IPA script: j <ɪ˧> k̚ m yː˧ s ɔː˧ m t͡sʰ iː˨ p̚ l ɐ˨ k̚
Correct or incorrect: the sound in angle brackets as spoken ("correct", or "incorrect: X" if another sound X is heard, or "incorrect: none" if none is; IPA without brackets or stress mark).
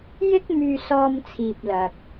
incorrect: ɪ˥